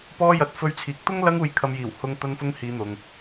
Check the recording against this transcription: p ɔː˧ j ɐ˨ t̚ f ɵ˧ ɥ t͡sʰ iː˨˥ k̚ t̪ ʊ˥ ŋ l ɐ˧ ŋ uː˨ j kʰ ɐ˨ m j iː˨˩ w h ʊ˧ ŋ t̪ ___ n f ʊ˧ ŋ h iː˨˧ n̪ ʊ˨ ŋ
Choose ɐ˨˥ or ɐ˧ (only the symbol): ɐ˧